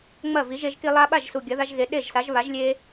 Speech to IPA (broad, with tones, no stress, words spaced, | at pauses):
ŋ͡mɐ˥˩vi˩˥ʒe˦ʒki˦ lˠa˦ɓa˥˩ʒ su˨˩ɡʲɐ˩˥ða˦ʒɣe˩˥ ɗe˥˩ʒsa˩˥ʒ βa˩˥ʒlʲe˦